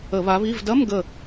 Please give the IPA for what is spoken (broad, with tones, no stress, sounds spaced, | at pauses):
ə˧˩˧ β a˨˦ β i˧˥˧ v d ɐ˧˥˧ m ɡ ə˧˩